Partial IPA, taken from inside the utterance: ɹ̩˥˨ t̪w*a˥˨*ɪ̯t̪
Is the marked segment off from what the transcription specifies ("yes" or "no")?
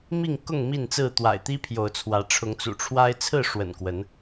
yes